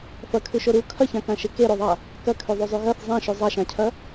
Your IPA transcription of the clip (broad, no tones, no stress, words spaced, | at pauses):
fɐkʰʉʃo ɾu kʰɐçãkãʃe keɾoðˤa | kɐkʰʉðˤuzˤʉ ɣɐθ zˤãʃʉ zˤaʃãcʰɐ